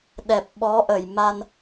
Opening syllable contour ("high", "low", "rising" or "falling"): low